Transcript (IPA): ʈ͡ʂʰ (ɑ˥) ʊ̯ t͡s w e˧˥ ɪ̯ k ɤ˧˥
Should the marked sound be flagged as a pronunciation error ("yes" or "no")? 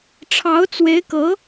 yes